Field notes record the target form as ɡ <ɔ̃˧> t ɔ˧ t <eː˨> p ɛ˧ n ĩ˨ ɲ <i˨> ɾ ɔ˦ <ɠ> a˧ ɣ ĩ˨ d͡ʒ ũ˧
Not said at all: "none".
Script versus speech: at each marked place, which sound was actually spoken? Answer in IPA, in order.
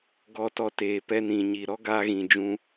ɔ˧, eː˨, i˨, ɡ

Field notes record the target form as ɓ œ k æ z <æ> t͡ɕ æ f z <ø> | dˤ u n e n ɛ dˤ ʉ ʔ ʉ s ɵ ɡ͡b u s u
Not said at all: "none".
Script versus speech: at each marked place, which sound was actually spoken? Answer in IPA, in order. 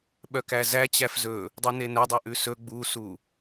æ, ɵ

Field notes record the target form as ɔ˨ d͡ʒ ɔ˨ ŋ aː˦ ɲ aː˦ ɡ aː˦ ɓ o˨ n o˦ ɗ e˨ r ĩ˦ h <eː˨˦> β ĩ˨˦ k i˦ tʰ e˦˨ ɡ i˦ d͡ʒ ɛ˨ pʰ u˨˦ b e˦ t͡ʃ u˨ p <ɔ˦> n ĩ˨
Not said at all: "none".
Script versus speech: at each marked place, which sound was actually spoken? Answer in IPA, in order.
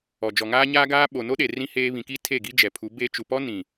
eː˦, ɔ˦

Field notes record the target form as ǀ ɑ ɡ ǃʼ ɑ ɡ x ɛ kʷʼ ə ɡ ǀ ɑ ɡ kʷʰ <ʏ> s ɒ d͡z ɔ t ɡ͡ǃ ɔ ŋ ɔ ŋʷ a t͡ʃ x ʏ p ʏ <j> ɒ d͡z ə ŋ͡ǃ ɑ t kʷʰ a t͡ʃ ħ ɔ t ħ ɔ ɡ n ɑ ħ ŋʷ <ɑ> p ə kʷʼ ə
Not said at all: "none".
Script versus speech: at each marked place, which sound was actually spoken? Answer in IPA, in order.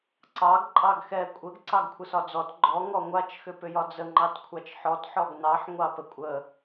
ə, j, ɑ

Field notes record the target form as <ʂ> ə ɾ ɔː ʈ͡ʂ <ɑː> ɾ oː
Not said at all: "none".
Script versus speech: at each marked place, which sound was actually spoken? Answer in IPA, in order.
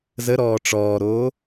z, ɔː

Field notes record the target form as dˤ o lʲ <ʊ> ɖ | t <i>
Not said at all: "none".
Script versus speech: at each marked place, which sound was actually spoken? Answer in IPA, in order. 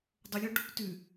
ɔ, y

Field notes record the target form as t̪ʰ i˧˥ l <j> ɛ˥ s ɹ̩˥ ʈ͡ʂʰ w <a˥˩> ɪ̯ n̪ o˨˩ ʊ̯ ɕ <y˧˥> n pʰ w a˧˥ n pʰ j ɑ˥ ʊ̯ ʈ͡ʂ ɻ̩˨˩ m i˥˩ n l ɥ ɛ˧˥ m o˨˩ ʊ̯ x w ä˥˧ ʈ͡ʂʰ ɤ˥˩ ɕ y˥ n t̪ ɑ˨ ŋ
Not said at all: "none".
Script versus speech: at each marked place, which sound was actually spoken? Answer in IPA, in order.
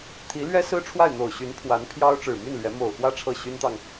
ɥ, a˥˩, y˧˥

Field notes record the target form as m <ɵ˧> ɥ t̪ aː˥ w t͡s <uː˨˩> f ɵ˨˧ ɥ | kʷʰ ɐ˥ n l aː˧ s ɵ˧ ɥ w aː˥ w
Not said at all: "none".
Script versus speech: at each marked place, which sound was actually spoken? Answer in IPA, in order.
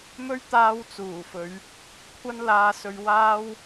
ɵ˥, uː˨˩

